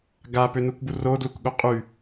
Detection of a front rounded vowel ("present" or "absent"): present